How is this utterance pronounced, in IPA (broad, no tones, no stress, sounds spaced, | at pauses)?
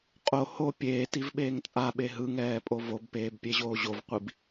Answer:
qʼ o h o pʲ eː t i v ɓ eː ŋ t͡sʼ a ɓ e ɦ ɯ ŋ ɛː pʼ o v o b p eː b pʲ e ʑ oː ʑ o v qʷ i b